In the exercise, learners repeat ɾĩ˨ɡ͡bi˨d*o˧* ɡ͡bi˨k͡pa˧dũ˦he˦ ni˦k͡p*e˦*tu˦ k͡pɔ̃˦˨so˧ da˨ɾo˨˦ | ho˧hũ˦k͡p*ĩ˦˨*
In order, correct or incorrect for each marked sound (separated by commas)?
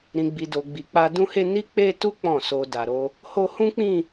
incorrect, correct, correct